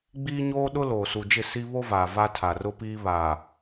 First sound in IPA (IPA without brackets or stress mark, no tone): ɡ͡b